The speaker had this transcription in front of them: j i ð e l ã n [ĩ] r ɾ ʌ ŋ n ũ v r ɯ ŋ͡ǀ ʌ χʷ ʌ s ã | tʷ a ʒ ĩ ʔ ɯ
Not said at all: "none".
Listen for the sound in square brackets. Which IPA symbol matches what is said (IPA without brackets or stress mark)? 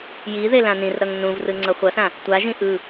ĩ